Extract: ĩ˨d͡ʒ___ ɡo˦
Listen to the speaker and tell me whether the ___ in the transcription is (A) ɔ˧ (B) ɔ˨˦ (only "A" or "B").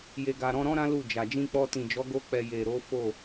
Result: B